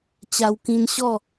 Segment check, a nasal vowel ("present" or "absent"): present